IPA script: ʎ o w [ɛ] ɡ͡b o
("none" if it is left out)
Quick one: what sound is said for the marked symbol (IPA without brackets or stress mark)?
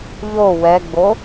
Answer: ɛ